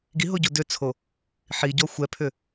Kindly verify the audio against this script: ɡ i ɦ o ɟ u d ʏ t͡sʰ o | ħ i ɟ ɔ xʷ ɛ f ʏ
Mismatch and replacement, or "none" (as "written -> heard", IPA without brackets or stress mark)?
f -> pʰ